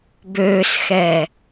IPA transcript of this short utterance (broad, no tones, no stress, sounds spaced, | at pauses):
b øː s x ɛː